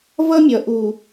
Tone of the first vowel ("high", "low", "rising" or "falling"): high